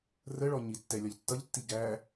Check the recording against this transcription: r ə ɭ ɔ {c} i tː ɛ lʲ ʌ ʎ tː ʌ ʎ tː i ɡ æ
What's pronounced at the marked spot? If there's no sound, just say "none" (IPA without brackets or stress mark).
ɲ